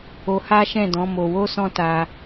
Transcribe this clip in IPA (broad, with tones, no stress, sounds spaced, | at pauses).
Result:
o˧ h a˦ ʃ ɛ̃˦˨ d ɔ̃˨˦ m o˧ w o˦ s ɔ̃˦ t a˧